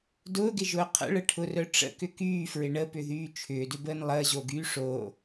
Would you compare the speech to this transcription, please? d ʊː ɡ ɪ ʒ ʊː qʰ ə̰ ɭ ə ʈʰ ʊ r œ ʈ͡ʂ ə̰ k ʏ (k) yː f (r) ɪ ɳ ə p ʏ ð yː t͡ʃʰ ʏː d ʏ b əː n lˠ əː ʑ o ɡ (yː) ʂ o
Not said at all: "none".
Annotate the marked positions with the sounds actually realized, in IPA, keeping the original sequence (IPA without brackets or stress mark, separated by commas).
k, ɹ, yː